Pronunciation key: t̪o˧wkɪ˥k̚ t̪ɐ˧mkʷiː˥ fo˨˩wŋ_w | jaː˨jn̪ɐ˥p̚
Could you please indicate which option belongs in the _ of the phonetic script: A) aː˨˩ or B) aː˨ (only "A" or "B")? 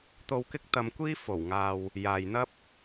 B